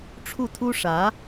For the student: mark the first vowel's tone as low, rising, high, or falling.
falling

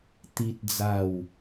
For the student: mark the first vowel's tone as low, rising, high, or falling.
high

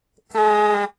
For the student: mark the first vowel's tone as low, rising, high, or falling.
low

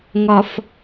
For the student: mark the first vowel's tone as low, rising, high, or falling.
low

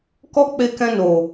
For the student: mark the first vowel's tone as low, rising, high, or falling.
high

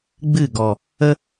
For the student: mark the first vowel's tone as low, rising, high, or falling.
falling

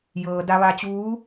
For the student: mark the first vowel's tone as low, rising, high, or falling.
low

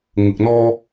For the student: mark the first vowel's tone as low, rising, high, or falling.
low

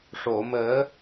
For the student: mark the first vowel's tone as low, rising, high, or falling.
low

